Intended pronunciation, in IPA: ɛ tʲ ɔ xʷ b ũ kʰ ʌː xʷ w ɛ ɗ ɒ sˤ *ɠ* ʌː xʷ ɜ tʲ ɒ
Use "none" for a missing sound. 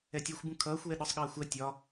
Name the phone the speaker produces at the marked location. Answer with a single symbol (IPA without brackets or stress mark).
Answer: ɠ